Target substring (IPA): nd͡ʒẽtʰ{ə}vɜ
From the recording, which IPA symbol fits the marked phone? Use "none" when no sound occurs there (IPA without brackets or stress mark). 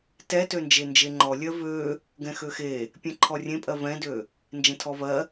ɔ